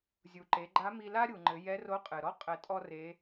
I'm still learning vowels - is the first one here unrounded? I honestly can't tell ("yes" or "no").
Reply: no